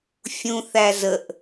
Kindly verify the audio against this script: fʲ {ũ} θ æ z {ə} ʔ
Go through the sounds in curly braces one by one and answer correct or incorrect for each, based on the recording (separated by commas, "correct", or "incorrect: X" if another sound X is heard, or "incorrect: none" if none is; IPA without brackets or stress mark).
correct, correct